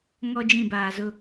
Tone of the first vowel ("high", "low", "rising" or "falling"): high